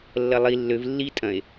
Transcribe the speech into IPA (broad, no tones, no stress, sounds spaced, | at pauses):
lː ɐ lˠ i lː ø v lː i tʼ ɐ̃ e̯